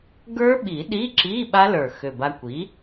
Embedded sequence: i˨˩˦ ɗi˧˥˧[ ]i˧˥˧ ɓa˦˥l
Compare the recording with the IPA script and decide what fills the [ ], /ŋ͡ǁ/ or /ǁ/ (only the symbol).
ǁ